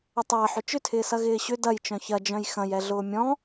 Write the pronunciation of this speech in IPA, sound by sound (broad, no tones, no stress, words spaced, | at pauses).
ətˤɐːħ ʏt͡ʃʏtʰɪːsɐ ɣɪːɕʏ dɐjt͡ʃœ̃ çɐd͡ʒœ̃j xɐ̃jɛ ɮʊːmʲɔ̃